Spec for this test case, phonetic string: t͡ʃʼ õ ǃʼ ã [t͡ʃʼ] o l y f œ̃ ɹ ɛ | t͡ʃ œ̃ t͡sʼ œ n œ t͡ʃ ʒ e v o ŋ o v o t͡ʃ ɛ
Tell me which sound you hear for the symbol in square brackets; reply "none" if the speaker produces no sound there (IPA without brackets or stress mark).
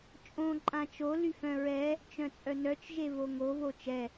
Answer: t͡ʃ